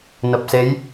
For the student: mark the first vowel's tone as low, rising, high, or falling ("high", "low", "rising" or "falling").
low